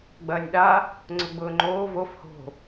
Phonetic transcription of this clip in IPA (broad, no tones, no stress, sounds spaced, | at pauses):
ɡ͡b ɐː nʲ ɗ a | ŋ͡ǀ ʊ ɡ͡b ʊː ŋ͡ǃ oː v o f h o̤